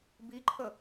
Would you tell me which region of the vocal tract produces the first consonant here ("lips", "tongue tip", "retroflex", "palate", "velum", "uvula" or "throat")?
lips